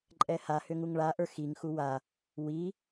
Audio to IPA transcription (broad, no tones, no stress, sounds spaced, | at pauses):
ǃʼ ɛ h a h ʏ ŋ u ŋ ɭ a ʔ ə˞ x i ŋ x u w a | w i